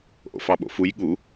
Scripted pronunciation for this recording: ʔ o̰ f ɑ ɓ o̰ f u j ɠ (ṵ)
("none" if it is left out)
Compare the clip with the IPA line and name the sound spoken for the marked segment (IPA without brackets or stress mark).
u